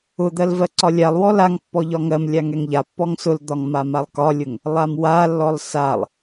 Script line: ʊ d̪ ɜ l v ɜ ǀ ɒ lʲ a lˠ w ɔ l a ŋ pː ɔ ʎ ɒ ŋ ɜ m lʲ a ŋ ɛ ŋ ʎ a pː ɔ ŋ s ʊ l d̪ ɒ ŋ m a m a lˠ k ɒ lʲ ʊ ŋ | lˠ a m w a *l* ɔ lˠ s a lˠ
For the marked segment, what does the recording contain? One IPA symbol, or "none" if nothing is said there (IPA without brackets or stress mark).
lː